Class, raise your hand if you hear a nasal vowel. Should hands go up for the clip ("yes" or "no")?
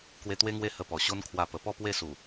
no